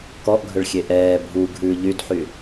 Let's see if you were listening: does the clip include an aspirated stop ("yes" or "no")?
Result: no